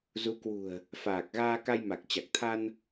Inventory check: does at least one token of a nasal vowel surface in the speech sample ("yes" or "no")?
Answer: no